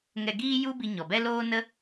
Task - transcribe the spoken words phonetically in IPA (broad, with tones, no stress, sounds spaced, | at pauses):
ŋ ɛ˧ ɡ iː˦ j u˦ b i˧ ɲ ɔ˨ b ɛ˦ l oː˦ n ə˦